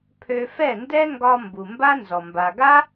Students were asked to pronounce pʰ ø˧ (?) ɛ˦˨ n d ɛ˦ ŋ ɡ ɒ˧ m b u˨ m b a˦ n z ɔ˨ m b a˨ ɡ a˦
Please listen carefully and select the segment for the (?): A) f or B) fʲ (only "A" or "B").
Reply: A